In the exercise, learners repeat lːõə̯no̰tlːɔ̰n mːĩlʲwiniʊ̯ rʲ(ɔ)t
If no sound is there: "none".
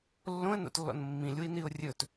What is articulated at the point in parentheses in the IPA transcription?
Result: ɵ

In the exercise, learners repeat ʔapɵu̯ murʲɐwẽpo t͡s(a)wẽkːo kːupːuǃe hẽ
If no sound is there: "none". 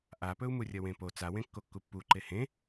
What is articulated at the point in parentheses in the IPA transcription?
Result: a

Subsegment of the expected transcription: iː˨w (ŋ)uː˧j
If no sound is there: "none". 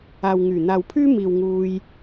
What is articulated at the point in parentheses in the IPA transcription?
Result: ŋ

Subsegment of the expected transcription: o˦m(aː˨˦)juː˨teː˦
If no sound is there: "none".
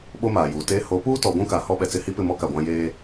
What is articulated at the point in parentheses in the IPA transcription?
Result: aː˨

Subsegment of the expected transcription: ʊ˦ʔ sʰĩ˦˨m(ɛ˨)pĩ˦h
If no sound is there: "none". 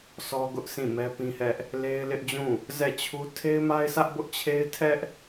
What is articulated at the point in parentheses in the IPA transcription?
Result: ɛ˦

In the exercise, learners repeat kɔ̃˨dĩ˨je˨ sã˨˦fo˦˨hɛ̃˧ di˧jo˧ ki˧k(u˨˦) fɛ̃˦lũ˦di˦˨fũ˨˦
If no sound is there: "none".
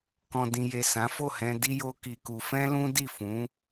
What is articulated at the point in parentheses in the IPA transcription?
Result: u˧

